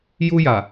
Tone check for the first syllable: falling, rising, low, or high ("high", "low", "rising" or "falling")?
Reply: high